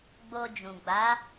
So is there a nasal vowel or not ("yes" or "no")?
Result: yes